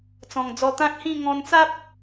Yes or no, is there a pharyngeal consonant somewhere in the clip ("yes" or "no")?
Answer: no